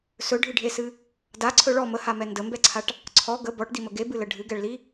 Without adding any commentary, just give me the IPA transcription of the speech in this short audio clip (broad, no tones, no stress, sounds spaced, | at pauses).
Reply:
s ɵ ɖʱ ɨ ɖʱ e s ɨ | d a ǀʰ ɵ ɭ ɔ m ə h a m ɛ n d ə m b ɛ ǀʰ a ʈ | ǀʰ ɔ ɡ ə b ɔ ʈ d i m ə ɡ e b ɨ l ə ɖʱ ɨ ɡ ɛ ɭ l i